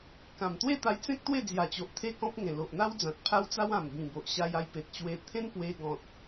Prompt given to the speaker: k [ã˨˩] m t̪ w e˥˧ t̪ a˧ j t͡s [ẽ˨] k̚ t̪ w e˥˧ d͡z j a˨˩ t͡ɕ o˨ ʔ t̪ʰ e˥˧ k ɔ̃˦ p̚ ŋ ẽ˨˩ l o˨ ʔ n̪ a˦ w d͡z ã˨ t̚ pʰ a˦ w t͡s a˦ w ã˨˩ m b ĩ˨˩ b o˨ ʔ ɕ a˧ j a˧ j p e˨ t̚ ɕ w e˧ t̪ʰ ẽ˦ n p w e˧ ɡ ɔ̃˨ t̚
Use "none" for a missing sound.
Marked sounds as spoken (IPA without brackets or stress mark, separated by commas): ã˨˩, ẽ˦